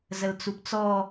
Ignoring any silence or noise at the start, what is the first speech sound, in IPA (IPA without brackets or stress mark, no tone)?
z